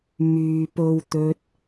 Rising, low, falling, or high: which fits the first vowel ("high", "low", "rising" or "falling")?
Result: low